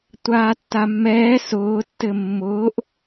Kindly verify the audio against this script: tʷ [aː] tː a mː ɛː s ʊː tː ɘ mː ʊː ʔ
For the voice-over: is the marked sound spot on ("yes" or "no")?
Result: yes